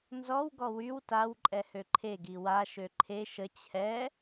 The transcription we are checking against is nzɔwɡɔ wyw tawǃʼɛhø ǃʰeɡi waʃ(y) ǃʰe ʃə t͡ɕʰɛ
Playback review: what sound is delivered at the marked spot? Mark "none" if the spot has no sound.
ø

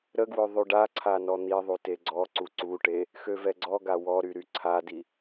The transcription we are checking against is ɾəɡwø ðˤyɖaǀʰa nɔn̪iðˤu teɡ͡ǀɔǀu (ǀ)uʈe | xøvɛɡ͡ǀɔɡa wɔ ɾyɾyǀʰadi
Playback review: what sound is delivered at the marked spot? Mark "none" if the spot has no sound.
ǀ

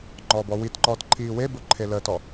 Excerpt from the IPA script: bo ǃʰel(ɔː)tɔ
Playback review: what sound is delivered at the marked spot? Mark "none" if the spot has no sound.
əː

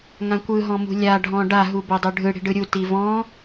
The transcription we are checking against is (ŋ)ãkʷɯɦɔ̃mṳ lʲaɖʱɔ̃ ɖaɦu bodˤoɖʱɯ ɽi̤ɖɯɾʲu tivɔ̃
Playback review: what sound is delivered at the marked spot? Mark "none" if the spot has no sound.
ŋ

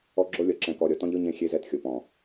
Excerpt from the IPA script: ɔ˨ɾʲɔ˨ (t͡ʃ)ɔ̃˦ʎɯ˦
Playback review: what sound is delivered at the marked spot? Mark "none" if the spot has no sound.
t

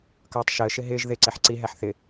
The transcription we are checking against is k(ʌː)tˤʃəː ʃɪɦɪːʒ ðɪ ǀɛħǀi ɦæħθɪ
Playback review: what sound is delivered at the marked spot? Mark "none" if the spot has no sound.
ʌː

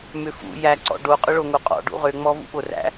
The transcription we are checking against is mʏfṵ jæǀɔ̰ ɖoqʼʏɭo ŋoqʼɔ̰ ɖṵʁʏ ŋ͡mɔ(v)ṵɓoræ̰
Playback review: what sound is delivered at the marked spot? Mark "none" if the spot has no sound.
v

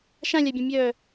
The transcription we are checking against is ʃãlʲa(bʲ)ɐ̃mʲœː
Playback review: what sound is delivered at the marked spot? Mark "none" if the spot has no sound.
bʲ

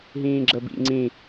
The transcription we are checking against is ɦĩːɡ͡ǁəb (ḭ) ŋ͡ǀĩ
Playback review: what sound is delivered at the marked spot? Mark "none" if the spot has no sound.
ḭ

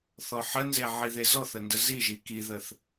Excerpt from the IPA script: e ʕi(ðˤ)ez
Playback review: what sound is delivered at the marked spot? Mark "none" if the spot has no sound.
ð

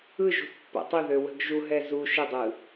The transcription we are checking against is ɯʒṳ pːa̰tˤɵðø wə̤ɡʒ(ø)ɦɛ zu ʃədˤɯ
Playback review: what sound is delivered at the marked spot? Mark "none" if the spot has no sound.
u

